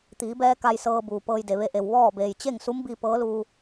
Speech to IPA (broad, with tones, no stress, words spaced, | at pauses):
t̪iː˩˧bɛː˧ ka˧jsɤː˧buː˩ pɤː˧jde˩ʋe˧˥ʔe˩w ʋɔː˥˨ beː˩jt͡ɕe˥˨ŋsu˧˥mbi˧ pɤː˧˥luː˧